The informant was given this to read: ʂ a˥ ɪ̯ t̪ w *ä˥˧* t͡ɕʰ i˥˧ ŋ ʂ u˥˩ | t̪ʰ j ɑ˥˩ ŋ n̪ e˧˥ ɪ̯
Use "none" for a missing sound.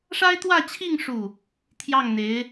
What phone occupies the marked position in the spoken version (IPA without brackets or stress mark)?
ä˥˧